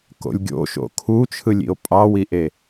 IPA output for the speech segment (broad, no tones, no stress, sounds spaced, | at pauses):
k o̰ lʲ ɡʲ o̰ ʃ o̰ kʰ u t͡ʃʰ ɯ lʲ ḭ o̯ pʼ ɑ w i ʔ e